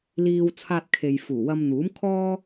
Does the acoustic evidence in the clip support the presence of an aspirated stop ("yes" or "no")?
yes